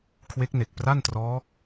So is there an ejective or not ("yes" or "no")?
no